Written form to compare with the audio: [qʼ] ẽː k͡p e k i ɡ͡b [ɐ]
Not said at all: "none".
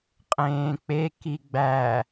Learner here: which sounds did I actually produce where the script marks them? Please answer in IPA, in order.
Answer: qʼ, æ

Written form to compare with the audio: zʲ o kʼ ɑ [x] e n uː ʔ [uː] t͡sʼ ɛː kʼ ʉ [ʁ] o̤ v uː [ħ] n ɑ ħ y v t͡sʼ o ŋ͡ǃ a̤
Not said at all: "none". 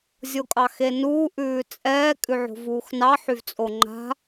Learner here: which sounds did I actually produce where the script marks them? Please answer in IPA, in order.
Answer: x, ʉː, ʕ, x

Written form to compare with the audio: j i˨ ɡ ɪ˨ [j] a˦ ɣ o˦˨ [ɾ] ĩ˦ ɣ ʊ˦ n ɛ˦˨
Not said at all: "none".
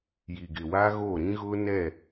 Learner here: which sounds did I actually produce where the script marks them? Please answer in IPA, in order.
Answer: w, ɾ

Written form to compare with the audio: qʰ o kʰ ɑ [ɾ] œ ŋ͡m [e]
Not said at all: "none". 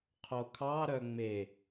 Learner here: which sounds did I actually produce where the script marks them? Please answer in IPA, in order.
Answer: ɾ, e

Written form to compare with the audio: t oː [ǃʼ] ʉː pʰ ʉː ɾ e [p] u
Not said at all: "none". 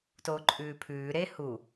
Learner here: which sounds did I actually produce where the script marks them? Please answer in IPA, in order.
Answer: ǃʼ, h

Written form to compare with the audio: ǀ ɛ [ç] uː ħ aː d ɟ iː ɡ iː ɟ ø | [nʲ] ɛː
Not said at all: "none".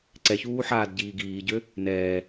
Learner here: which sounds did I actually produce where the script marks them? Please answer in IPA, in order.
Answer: ç, n

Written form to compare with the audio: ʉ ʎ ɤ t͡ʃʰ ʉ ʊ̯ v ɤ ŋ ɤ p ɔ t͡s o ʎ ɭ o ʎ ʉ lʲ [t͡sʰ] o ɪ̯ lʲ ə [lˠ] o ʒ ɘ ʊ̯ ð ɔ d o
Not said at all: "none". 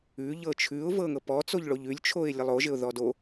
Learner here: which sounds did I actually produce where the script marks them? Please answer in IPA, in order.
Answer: t͡ʃʰ, lˠ

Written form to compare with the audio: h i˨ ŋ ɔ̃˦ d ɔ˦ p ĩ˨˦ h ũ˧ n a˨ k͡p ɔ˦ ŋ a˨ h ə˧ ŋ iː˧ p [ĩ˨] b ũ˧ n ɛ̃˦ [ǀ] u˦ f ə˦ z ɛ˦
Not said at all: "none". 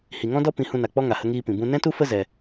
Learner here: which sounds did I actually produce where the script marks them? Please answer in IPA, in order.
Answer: ĩ˨, t

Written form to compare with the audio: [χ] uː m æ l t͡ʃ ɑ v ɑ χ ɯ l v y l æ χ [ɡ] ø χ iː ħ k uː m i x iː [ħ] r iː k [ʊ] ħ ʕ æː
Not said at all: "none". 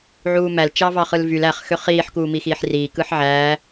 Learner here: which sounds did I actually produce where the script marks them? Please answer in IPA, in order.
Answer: ʕ, x, ħ, ɯ

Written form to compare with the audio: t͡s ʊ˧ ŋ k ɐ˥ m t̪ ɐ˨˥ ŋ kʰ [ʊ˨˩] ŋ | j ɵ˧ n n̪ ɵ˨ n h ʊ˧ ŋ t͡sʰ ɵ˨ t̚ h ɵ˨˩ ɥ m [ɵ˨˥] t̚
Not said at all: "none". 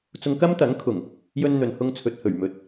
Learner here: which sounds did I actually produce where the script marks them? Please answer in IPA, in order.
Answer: ʊ˨˩, ɵ˨

